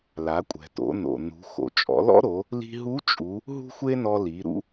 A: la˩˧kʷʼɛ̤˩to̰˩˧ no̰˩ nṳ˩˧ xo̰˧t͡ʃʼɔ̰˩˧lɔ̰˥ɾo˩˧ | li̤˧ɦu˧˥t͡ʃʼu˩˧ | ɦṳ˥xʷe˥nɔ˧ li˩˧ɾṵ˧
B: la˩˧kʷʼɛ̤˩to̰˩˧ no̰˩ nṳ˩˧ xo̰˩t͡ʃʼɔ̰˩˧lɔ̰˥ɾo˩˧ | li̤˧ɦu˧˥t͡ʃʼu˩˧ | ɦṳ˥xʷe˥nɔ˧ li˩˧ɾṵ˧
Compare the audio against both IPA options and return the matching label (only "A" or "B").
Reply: B